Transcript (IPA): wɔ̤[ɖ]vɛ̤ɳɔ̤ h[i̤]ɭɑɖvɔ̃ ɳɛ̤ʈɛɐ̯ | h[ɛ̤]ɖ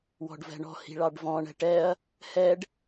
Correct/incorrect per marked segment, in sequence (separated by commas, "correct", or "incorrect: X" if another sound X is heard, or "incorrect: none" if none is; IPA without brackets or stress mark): correct, correct, incorrect: ɛ